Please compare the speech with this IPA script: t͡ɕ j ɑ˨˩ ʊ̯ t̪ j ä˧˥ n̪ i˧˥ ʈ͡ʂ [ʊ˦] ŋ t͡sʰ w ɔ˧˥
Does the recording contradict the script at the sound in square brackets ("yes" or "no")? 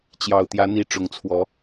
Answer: yes